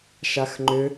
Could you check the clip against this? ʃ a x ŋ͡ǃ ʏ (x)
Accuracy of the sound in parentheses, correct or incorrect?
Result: incorrect